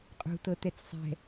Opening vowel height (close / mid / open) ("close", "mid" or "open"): close